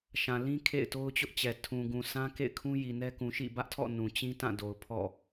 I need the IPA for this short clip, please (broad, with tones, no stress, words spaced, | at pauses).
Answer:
ʃã˨ lĩ˦ kʰḛ˦˨ɪ̯to˦ʊ̯t͡ɕʊ˦ʔt͡ɕɛ˨ tʰũ˨ ɡũ˨sʰã˦ kḛ˦˨ɪ̯kʰũ˦ ji˨nɛ˦ kũ˨ʃḭ˦˨bä˦ʔtʰɔ̰˦˨ nũ˨ t͡ɕĩ˦tã˦˨do˨ʊ̯ pʰɔ̰˦˨